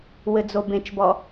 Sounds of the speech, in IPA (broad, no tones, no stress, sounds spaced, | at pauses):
w ɘ d͡z o b ẽ t͡ʃ b ɔ